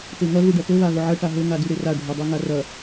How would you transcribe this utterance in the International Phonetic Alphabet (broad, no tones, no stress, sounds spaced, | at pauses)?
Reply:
t e ŋ ɐ ɣ u ɖ ɐ t ɵ β a ɣ ɵ ʕ ɐ ʈ a ɦ ɵ ŋ a d ʉ ɾ e r a ɖʱ ɵ dˤ e ŋ a r ɐ